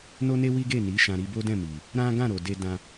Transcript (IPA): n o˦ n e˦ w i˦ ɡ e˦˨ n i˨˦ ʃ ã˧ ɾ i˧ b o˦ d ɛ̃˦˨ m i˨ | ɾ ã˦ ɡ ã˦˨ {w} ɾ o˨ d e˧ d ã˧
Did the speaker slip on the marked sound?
yes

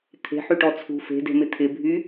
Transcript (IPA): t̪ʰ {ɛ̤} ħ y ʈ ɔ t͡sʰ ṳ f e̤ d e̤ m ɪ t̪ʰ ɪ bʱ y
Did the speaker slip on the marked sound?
yes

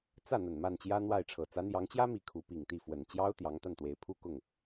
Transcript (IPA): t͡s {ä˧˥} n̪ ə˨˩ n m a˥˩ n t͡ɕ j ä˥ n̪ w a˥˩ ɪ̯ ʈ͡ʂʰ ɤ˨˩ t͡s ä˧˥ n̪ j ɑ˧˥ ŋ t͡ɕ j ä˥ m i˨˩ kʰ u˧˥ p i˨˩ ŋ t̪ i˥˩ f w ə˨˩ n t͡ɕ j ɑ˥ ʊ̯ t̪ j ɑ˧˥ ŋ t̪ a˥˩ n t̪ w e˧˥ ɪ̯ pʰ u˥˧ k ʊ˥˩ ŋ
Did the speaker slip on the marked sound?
yes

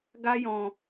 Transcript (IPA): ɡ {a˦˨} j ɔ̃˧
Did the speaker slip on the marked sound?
yes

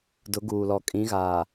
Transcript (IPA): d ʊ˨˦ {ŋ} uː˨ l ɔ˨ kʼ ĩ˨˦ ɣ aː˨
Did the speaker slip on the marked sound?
yes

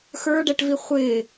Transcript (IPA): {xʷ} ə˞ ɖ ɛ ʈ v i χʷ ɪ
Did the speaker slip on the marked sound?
yes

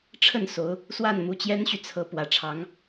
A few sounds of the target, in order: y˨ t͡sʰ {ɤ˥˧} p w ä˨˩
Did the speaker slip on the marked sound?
yes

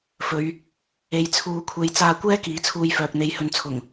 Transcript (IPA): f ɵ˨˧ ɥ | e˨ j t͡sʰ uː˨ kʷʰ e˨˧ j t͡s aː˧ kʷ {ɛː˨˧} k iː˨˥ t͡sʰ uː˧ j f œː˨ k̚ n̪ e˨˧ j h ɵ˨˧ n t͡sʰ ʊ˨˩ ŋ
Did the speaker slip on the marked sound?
yes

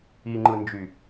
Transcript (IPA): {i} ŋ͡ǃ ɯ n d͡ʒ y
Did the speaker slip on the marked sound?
no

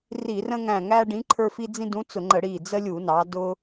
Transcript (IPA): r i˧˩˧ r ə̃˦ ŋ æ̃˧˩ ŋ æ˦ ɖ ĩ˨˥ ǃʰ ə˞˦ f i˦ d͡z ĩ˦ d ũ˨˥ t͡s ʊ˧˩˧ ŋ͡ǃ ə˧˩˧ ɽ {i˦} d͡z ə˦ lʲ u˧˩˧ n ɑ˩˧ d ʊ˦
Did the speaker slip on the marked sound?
yes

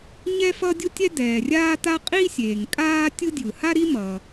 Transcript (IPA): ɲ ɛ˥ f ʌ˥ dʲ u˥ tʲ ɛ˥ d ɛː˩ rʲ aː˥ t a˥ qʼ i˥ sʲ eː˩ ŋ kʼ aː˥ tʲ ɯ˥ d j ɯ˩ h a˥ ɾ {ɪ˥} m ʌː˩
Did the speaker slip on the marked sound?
yes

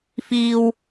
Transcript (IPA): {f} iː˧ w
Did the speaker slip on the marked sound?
no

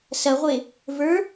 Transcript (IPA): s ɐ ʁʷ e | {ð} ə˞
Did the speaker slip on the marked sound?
yes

